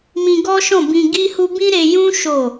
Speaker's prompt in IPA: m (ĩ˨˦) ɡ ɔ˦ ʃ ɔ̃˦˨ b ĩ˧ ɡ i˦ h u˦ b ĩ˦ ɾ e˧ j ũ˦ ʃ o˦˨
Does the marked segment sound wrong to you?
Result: yes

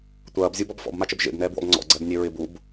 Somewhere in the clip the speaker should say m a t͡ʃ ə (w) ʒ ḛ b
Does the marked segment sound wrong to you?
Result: yes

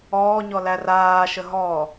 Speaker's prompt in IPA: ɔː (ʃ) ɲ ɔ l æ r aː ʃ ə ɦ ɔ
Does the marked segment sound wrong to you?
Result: yes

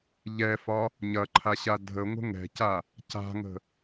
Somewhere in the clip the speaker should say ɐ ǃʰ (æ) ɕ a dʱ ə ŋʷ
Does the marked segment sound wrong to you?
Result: yes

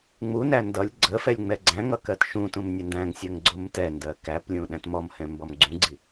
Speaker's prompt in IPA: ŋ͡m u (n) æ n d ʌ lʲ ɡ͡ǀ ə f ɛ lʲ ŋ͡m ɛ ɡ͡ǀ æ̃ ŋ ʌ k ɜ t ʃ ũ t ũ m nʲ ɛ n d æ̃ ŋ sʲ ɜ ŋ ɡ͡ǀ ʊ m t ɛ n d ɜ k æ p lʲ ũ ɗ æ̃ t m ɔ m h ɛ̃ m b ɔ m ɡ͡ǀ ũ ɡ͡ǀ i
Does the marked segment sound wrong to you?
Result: no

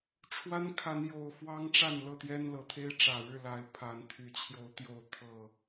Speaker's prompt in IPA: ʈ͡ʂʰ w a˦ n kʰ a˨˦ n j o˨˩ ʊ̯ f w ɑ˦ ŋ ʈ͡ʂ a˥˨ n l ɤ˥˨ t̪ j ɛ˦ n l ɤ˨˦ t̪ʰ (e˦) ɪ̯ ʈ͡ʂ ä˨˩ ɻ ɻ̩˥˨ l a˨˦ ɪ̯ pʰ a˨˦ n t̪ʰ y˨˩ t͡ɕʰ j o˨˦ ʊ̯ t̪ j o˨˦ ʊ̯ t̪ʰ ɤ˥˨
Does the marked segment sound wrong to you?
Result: no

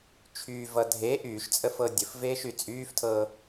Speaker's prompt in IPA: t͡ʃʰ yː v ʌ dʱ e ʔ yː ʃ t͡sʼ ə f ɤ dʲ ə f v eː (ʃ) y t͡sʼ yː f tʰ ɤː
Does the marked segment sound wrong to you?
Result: no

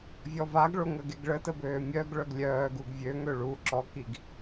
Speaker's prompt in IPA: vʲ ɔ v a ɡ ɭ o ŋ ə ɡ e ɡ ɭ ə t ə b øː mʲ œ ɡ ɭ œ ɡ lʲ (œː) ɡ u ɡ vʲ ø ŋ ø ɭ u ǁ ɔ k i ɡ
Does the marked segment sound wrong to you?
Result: no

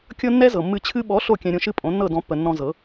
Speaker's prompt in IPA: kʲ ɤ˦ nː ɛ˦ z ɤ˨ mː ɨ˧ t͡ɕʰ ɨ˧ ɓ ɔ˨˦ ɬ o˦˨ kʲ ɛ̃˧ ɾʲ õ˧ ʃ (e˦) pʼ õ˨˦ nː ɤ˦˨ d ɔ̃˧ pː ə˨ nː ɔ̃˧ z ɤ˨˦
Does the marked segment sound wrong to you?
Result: yes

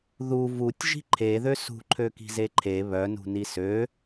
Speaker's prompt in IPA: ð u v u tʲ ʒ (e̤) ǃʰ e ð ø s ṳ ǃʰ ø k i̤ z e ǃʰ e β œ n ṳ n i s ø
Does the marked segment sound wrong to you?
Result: yes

